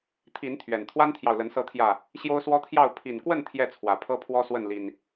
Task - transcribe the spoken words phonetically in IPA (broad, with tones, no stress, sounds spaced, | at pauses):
t̪ʰ i˨˦ n t̪ʰ ɥ ɛ˨˩ n t̪ʰ w a˦ n t̪ʰ j ɑ˨ ʊ̯ l ə˨˦ n s ɤ˨˦ t̪ʰ j ä˨˩ | ɕ j o˦ ʊ̯ s w ɔ˦ t̪ʰ j ɑ˥˨ ʊ̯ pʰ i˨˩ n k w ə˥˨ n t̪ʰ j ɛ˥˨ t͡sʰ w ä˨˩ pʰ ɤ˦ pʰ w ɔ˦ s w ə˥˨ n l i˨˩ n